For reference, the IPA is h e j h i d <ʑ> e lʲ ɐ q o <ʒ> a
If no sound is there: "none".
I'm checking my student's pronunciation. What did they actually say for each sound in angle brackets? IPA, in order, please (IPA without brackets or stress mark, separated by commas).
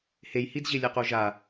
ʑ, ʒ